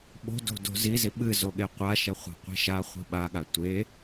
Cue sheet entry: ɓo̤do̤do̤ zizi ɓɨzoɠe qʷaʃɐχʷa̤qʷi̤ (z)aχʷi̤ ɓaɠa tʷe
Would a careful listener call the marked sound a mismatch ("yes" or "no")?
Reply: yes